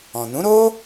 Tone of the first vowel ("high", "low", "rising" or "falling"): low